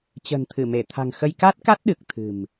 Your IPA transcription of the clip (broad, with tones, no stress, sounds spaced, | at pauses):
t͡ɕ ə̤ː˨˩ n t̪ʰ ɨ˧˩ m e˧˩ t̪ʰ a̤˨˩ ŋ x ə˧ j k a˦˥ t̚ k a˦˥ t̚ ɗ ɨ˨˩ k̚ t̪ʰ ɨ̤˨˩ m